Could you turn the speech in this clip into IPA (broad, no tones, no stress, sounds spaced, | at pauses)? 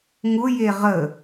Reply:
ŋ ʊ j e ʁ ə